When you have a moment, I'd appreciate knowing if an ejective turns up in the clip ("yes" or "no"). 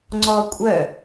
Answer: yes